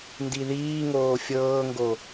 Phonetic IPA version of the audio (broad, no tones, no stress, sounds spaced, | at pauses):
n d i ð iː ŋ oː fʲ ɤː ŋ ɡ o